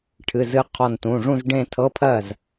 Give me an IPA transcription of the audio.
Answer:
ʈʰ ɨ˩˧˩ z ɨ˧ qʰ ɔ˧˩ n t ũ˩˧˩ ʐ ũ˥˧ z ɖ ẽ˥˧ tʰ ɤ˧˥˧ pʰ ɜ˥˩ z

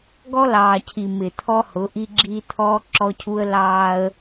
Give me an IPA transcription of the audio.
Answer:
ɡ ɔ˦ l ɑː˨ cʰ i˨ m ɪ˨ t̪ʰ ɔ˦ h ʊ˨˦ ʔ i˦ ɡ͡ǁ i˦ t̪ʰ ɔː˦ ǁ ɔ˦ cʰ u˦ ə̯ l ɑː˦ ə̯

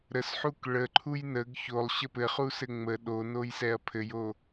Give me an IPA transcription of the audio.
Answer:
ɾ ə s ħ u k ɭ ə ǃʰ u j n ə ɡ ç o lˠ ɕ ə p ɘ χ u s ɘ ŋ͡m ə ɗ o n o j s ɛ ɐ̯ pʰ ɘ j o

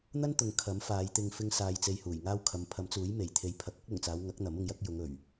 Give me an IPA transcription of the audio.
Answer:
n̪ ɐ˥ n t̪ ʊ˨ ŋ kʰ ɐ˨˥ m f aː˨˧ j t̪ ɪ˧ ŋ f ɪ˧ ŋ s aː˨ j t͡s e˧ j h uː˨˩ j ŋ aː˥ w kʰ ɐ˨˧ m pʰ ɐ˨˥ m t͡s uː˨˥ j m e˨˩ j t̪ʰ e˨˧ j pʰ ɐ˨˥ k̚ ɐ˥ k̚ l ʊ˨˩ ŋ t͡s aː˨˧ w ŋ ɐ˨˥ k̚ n̪ ɐ˨˥ m ʊ˧ ŋ j ɐ˨˥ k̚ j ʊ˨˧ ŋ ɵ˨˩ ɥ

